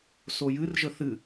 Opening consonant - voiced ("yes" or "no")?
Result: no